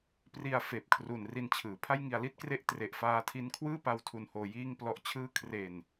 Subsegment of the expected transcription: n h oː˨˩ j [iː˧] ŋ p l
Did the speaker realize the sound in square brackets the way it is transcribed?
yes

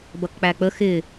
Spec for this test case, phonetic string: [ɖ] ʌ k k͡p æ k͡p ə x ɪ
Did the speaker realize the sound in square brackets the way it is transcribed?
no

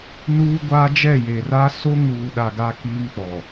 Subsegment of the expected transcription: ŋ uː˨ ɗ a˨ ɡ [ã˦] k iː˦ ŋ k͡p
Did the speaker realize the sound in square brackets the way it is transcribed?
no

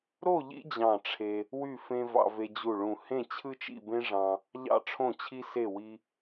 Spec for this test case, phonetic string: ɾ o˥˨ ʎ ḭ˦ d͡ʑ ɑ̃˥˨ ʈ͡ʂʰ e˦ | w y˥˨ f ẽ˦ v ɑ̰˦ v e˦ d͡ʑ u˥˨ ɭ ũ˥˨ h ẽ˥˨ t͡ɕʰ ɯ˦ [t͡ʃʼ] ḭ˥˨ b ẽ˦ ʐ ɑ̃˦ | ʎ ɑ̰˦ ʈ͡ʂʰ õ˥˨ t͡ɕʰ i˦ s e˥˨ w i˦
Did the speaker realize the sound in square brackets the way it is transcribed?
no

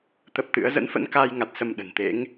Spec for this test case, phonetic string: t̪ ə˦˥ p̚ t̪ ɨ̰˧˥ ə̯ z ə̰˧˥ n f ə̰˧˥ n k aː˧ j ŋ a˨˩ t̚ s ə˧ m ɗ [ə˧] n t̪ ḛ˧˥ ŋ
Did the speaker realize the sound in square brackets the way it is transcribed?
no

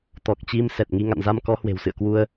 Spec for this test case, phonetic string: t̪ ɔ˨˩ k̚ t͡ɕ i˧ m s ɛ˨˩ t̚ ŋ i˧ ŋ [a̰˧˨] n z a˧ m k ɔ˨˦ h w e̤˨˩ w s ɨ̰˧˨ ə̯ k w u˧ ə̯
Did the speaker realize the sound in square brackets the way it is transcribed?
yes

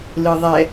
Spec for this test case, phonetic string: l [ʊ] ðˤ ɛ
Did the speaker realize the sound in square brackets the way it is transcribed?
no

